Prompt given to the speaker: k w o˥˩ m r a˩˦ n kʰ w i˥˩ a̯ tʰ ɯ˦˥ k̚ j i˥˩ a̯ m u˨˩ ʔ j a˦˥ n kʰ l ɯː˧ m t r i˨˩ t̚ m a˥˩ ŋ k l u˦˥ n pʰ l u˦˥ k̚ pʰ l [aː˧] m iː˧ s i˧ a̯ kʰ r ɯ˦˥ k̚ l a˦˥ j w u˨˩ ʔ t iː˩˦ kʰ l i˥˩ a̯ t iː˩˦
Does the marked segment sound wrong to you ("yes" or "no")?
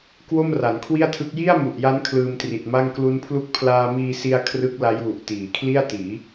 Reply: no